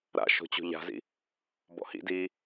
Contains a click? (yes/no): no